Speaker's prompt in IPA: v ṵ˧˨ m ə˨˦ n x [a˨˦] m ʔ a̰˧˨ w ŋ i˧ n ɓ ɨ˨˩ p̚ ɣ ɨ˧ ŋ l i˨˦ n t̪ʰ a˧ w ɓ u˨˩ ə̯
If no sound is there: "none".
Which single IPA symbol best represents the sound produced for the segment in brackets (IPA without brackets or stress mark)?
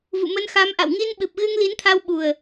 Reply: a˨˦